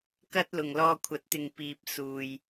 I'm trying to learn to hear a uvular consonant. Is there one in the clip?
no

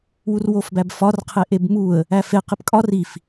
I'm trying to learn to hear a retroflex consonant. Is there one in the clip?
no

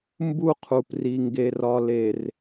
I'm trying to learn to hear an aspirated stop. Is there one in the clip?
yes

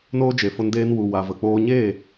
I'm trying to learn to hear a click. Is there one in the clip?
no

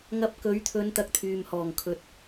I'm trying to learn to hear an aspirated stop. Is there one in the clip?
yes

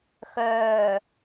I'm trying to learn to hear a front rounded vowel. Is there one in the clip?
yes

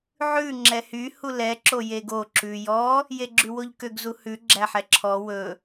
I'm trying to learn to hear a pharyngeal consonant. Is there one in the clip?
yes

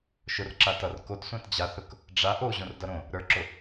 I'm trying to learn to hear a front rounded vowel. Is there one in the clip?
no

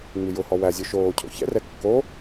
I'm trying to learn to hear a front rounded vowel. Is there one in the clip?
no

